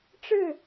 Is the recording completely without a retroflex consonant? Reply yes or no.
no